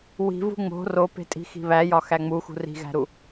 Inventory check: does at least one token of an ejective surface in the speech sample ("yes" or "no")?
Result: yes